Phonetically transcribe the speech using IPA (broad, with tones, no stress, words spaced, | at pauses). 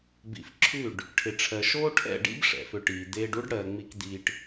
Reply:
bḭ˨f ǁʰʉ˦˨ɖ | ʈʰɪ˨ʈ͡ʂʰɜ˨ ʃoː˦ʈʰɛ̰˦˨ɖḭ˦b ʂɛ̰˨fʏ˧ʈiː˨ d̪eː˧ɖu˦ɖ ɽɜː˨ŋ͡mi˧k d̪iː˧ʈ